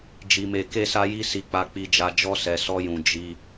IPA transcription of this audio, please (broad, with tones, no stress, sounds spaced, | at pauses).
d͡ʒ i˧ m e˧ k e˦ s a˦ j i˦ s i˦ k͡p a˦ k͡p i˦ d͡ʒ a˦ d͡ʒ ɔ˦ s ɛ˧ s ɔ˦ j ũ˧ d͡ʒ i˧